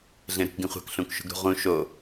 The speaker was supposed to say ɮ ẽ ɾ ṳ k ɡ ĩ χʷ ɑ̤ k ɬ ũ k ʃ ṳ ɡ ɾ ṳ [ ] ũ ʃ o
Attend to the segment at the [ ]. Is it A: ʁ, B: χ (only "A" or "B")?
A